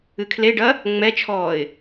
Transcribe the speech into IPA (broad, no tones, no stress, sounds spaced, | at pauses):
ɨ kʰ l e ɖ ɐ | ŋ͡m ɛ t͡ʃʰ ɔː ɪ̯